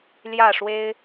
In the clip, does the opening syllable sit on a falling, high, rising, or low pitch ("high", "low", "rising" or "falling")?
falling